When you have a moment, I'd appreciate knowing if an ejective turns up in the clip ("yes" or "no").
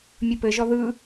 no